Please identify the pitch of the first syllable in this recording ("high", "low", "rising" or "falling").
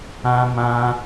high